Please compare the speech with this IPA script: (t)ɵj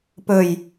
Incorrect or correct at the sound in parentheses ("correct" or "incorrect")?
incorrect